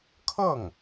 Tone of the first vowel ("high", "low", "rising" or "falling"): falling